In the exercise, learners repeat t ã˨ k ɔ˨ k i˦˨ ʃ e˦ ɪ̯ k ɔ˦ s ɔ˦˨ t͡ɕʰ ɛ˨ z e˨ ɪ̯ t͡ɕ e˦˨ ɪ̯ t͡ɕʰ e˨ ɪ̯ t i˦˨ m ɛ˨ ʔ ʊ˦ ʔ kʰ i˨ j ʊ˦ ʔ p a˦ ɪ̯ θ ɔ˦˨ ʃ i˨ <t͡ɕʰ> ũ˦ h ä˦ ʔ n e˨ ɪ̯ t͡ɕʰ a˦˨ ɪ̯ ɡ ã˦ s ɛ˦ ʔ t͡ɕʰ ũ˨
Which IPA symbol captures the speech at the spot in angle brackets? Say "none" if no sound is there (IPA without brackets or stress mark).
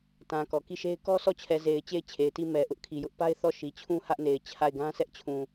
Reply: t͡ɕʰ